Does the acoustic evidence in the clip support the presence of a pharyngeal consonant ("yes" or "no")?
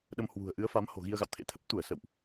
no